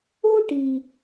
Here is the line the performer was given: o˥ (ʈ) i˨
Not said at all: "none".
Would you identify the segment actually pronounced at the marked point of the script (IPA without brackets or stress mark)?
ʈ